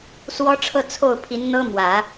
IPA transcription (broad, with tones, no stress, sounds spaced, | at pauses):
s w ɔ˥ ʈ͡ʂʰ ɤ˥˧ t͡sʰ o˥˩ ʊ̯ pʰ i˧˥ n n̪ ɤ˥ m w ä˨˩˦